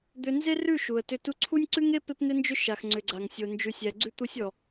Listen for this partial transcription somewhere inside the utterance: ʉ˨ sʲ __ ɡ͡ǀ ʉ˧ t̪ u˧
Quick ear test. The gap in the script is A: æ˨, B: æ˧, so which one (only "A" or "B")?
A